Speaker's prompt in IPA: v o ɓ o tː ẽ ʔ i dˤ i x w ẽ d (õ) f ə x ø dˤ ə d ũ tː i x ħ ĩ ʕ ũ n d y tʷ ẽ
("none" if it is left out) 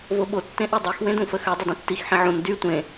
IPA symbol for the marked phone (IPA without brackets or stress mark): ũ